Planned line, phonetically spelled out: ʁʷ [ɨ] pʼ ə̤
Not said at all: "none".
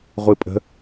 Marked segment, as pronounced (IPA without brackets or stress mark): ɨ